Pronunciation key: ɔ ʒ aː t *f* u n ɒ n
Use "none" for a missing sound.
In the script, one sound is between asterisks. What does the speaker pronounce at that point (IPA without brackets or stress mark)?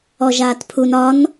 pʰ